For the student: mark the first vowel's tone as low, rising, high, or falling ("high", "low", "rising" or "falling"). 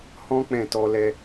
high